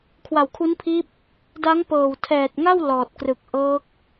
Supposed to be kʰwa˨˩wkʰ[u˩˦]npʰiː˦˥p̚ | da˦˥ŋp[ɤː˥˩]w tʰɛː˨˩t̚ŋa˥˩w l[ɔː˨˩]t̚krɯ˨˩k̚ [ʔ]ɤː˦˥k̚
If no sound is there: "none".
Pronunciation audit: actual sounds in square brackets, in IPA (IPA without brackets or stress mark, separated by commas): u˦˥, ɤː˨˩, ɔː˨˩, ʔ